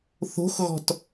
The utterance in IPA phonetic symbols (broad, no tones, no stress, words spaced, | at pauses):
θo̤xɣɔ̤t